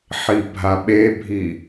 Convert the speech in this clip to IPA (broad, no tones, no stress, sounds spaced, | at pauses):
ħ i bʱ a ɓ e bʱ i